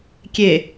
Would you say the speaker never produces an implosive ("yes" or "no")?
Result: yes